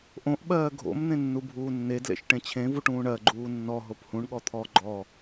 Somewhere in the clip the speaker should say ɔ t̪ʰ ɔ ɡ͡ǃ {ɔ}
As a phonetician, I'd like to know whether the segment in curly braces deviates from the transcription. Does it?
no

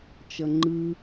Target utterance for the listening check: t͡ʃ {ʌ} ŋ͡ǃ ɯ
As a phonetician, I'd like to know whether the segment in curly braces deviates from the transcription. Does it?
no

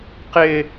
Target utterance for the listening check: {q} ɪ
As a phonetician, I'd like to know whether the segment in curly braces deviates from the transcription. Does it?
no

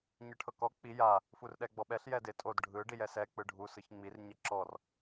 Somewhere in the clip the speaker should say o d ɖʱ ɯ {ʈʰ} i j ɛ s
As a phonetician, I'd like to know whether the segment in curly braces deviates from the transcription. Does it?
yes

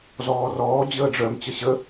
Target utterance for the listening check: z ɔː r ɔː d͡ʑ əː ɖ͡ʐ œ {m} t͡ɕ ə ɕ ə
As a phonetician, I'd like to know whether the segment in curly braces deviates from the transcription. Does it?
no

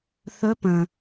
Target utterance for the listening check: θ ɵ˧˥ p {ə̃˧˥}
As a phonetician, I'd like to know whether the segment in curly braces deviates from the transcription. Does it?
yes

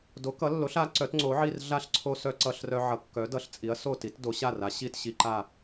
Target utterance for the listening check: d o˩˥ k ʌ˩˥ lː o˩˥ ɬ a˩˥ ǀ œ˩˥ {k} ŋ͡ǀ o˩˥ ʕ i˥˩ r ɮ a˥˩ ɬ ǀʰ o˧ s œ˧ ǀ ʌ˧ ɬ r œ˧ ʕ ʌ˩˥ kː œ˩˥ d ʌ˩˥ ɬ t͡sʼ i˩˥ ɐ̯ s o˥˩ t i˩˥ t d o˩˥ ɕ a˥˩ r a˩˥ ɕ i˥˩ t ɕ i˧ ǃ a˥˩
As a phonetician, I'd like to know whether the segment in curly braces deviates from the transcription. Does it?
yes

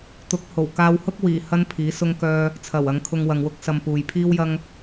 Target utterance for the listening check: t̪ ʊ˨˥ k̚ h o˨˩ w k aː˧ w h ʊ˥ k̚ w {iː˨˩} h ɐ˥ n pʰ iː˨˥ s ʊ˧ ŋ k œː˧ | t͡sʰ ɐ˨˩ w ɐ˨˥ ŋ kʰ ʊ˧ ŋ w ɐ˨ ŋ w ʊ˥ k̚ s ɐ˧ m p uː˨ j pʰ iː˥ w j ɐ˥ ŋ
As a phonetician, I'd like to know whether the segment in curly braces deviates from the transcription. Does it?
no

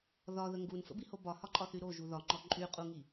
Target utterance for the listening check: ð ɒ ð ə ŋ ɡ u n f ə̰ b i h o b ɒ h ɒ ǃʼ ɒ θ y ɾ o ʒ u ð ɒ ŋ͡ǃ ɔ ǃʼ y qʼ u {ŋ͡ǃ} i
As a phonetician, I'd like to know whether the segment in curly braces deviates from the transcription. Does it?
yes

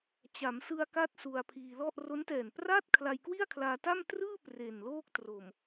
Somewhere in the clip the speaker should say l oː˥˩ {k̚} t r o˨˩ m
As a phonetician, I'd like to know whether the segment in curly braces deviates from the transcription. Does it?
no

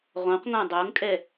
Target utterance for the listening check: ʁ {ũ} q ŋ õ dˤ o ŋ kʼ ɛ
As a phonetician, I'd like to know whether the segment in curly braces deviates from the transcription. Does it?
yes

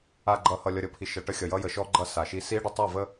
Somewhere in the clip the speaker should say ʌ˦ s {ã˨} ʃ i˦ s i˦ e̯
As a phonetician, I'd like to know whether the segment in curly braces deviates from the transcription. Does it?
yes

